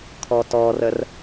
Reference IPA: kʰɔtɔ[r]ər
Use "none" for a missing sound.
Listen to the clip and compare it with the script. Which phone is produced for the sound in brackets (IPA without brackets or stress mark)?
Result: r